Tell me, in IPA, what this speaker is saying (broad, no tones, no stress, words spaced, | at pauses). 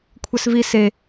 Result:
kʷʰɛsvi se